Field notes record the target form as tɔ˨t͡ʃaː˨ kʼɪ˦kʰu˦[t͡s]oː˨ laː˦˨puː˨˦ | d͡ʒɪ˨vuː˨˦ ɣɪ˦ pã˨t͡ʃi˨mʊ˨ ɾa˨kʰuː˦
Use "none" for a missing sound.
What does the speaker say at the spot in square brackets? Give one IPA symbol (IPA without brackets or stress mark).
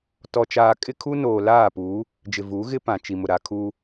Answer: n